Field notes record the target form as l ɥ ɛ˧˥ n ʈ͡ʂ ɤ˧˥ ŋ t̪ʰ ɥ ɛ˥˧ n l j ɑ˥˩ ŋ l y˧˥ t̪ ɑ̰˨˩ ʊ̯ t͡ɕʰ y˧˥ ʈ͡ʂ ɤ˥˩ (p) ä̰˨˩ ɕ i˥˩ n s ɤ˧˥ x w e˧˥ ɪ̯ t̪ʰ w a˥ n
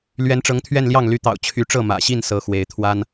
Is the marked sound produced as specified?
no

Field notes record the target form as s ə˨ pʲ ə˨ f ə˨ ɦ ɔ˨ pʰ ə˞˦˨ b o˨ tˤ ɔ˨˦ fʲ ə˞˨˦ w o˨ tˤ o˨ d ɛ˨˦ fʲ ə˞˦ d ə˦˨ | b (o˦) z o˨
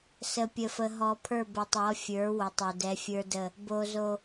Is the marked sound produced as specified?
no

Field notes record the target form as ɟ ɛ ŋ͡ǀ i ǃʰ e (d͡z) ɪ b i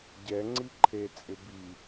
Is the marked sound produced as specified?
no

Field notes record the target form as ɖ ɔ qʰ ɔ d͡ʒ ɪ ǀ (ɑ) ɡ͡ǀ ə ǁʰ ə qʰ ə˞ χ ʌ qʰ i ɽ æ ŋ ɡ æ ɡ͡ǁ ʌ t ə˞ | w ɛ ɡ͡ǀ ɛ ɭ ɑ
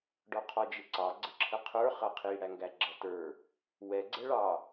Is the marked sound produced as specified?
yes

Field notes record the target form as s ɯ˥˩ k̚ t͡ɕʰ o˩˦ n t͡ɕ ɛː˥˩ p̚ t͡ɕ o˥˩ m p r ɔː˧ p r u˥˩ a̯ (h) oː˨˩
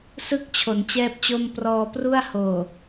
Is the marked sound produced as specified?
yes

